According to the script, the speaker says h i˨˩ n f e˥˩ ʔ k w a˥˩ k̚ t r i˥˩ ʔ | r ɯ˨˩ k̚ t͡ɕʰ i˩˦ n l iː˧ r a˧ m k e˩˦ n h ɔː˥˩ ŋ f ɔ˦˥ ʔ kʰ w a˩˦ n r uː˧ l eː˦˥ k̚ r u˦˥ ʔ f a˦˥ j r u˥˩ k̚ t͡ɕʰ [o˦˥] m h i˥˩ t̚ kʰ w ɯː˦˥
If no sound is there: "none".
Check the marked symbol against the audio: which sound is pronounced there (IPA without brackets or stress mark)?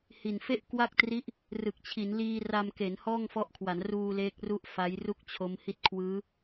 o˦˥